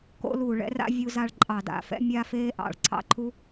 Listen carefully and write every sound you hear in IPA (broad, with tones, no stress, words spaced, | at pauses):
ko̰˥lu˧˩˧ɭɛ̰˥ra̰˥ vʲu˥za˥ɭ ǃʼɑ˧˩˧da̰˧˩˧fɛ̰˥ mʲa˥ feː˥ʔɑ̰˧˩˧ɭǀʰɑ̰˥ ǃʰu˥